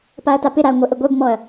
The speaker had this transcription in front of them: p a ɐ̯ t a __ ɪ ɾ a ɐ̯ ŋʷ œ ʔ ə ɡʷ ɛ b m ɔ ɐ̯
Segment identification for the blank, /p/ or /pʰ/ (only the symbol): p